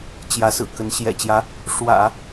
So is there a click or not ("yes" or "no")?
no